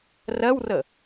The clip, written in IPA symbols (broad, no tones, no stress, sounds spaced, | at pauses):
r ɜ w r ə